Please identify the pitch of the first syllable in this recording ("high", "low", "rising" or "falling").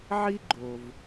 high